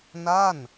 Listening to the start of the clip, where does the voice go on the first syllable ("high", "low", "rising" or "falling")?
falling